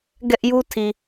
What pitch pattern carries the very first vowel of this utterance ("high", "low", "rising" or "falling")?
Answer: high